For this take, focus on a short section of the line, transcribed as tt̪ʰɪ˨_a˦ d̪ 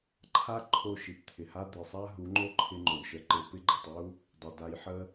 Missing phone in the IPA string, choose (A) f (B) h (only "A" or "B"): B